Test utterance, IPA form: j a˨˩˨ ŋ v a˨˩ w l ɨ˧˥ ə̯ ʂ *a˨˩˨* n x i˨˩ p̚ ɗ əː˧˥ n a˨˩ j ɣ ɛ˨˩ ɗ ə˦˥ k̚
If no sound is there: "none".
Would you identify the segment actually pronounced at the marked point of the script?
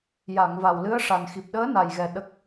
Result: a˨˩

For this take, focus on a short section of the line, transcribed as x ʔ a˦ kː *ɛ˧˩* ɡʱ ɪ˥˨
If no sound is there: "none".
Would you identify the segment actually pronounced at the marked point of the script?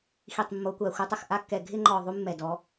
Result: ɛ˧˩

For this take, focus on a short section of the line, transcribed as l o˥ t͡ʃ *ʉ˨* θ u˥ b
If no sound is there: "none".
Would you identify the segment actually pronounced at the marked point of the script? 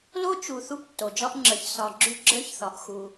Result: u˨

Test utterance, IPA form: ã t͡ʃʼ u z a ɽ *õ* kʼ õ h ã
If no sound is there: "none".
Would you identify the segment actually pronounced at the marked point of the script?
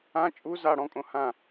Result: ɔ̃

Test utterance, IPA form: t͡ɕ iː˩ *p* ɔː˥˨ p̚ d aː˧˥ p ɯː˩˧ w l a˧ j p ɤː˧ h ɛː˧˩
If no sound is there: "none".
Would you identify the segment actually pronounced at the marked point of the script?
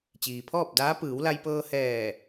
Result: pʰ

